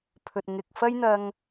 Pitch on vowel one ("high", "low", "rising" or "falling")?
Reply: low